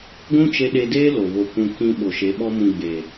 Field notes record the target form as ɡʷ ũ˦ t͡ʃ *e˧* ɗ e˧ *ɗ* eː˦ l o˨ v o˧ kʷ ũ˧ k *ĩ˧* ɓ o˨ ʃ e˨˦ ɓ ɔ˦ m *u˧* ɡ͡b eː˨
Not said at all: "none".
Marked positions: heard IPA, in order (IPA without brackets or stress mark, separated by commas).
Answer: e˧, d, ĩ˧, ũ˧